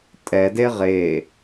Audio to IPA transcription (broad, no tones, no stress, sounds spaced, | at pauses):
tʼ ɛ d e ʁ e